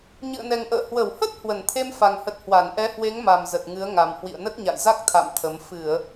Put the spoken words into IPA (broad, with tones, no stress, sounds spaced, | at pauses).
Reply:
ɲ ɨ̰˧˨ ə̯ n ɛ˨˩ ŋ ʔ ə̰ː˧˨ h w ə˧˩ w h ə˦˥ t̚ h w ə˧˩ n t̪ʰ e˧ m f a˨˩ ŋ h ə˨˩ t̚ h w a˧˩ n ʔ ɛ˨˦ h w e˨˦ ŋ m a˨˩ m z ə˨˩ t̚ ŋ ɨ˨˦ ə̯ ŋ a˨˩ m h w ḭ˧˨ ə̯ n ə˦˥ t̚ ɲ a̰˧˨ j z a˦˥ k̚ t̪ʰ a̰˧˨ m t̪ʰ ə˨˦ m f ɨ˧˩˨ ə̯